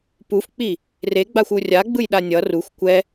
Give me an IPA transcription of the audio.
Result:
p u f k͡p i | r e ɡ͡b a xʷ u rʲ a ɡ͡b ɯ j ɗ a nʲ ʌ r u xʷ kʷ ɛ

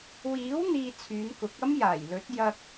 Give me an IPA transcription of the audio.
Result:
w iː˨˥ w n̪ iː˧ t͡sʰ yː˨˧ n k ʊ˨˥ k̚ ɐ˥ m j aː˨˩ j l ɵ˨˥ t̚ j ɐ˧ k̚

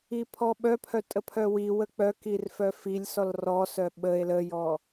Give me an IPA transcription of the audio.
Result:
i pʰ ɔ ɓ œ pʰ œ tʼ ə pʰ œ w i w ə k͡p œ k i r f œ f i lʲ s ɔ l r ɔ s œ ɓ ə e̯ l ə j ɔ

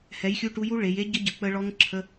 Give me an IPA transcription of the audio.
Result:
h ɛ˨˥ j xʲ u˧˥˧ ʈ u˦˥ j u˦˥ ɭ e˩˧ j e˦˥ ɟ ə˦˥ ɟ ə˩˧ k͡p ə˦˥ ɭ ɔ˦˥ ŋ ǁʰ ə˧˥˧

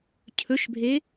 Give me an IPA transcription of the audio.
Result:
cʰ ɵ ʃ bʱ e

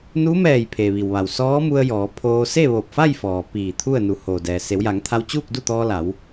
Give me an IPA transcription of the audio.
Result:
n u˧˥ m ɛː˧˩ j pʰ e˩ ʋ i˩ w ʋ a˩ w s ɔː˧˥ m u˧ ə̯ j ɔː˩˧ pʰ oː˧ s e˥˨ ʋ o˧˩ p̚ f a˥˨ j f ɔː˩ p iː˧˩ t̪ʰ u˥˨ ə̯ n u˩˧ h oː˩ d ɛː˩ s e˩˧ w j a˩˧ ŋ t̪ʰ a˧ w t͡ɕ uː˥˨ k̚ d u˥˨ t̪ ɔː˧ l a˩˧ w

